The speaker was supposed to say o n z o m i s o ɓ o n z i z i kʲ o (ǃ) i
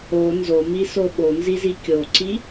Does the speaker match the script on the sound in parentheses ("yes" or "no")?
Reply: no